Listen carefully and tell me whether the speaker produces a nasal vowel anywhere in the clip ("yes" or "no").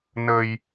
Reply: no